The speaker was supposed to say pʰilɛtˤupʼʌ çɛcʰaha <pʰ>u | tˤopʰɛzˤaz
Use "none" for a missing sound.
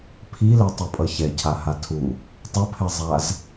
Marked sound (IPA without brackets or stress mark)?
tʰ